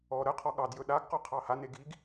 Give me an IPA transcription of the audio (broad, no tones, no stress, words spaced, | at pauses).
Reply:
ɔ ɾəqʰɔ ɠɑdjɵ ɗaɡqɔ qʰɑhane ɡiɡ